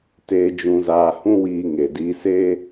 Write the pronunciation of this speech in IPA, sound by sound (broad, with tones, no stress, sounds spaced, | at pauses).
t eː˧ d͡ʒ ũ˧ z aː˧ h ũ˦ w iː˧ ŋ e˨ d iː˧ s eː˦